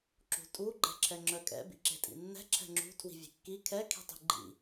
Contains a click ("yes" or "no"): yes